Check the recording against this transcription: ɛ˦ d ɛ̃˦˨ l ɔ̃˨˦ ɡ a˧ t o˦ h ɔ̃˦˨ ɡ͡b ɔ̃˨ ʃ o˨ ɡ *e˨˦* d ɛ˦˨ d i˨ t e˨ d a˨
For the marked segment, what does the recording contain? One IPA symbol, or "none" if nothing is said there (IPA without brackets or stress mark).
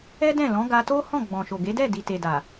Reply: e˨˦